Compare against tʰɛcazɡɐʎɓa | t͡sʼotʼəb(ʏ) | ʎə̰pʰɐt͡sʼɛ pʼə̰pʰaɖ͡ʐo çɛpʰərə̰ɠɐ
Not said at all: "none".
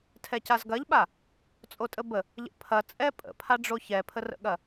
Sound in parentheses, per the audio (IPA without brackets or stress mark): ə